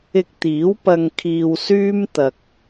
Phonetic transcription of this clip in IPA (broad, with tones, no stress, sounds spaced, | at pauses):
ɪ˥ k̚ t̪ iː˨˥ w p ɐ˧ ŋ kʰ iː˧ w s yː˥ m t̪ ɐ˧ k̚